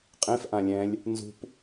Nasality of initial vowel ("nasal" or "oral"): nasal